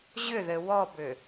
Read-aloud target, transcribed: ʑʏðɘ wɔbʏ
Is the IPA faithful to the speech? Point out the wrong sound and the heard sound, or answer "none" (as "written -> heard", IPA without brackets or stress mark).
none